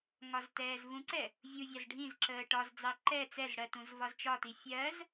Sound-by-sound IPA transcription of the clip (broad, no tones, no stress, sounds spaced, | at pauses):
ŋ ɒ z t ɛː z v ũ ǀ ɛ | vʲ u vʲ ɑ z ɖʱ ĩ z ǁ əː ʈ ɒ z d͡z ɑ ǃ ɛ t͡s ɛ z ɽ ɜ t ũ z v ɒ z t͡ʃ ɒ t i fʲ ɜ z